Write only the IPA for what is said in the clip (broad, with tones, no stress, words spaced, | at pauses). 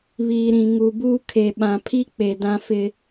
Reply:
βiː˨ɾĩ˨ ŋu˨buː˦kʰe˨ ɓã˨pʰi˦k͡pe˨ dã˦fɪ˦